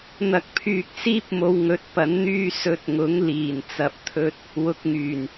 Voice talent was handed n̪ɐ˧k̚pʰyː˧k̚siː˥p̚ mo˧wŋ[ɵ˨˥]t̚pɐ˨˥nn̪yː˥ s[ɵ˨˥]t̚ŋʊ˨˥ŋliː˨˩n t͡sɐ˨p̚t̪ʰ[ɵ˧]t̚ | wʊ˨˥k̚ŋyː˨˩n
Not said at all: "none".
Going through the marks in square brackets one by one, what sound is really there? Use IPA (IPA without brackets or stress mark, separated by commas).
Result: ɵ˨˥, ɵ˧, ɵ˧